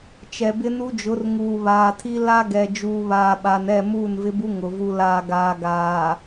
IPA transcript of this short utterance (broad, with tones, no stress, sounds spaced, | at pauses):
t͡ʃ ɛ˨ b ɪ˦ n u˦ d͡ʒ ʊ˨˦ r ŋ uː˨ β aː˨ tʰ i˦ l a˦ ɡ ɛ˨ d͡ʒ uː˨ β aː˨ ɓ a˨ n ɛ˦˨ m uː˦˨ n v ɪ˦ b u˦ ŋ ʊ˨ v u˨ l aː˨ ɡ aː˨ ɡ aː˨